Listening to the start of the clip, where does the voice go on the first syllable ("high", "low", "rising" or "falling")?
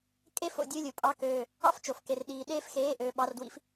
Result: high